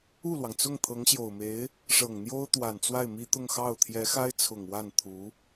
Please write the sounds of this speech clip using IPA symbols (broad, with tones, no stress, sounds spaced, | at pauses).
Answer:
u˥˩ l w ɑ˩ ŋ t͡s ʊ˥˩ ŋ t̪ʰ ɤ˧˥ ŋ ɕ j o˨˩ ʊ̯ m e˧˥ ɪ̯ | ʂ ɤ˨˩ ŋ n̪ j o˥ ʊ̯ t̪ w a˨˩ n t͡s w a˥˩ ɪ̯ m i˥ t̪ ʊ˥˧ ŋ x ɑ˥˩ ʊ̯ t̪ʰ j ɛ˧˥ x a˥ ɪ̯ t͡sʰ ʊ˨˩ ŋ w a˥˩ n t̪ʰ u˧˥